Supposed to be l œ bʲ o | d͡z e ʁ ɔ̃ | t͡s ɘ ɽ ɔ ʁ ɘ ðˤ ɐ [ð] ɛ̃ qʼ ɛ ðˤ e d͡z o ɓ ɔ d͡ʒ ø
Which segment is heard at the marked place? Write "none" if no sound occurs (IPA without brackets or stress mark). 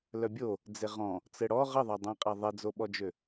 dˤ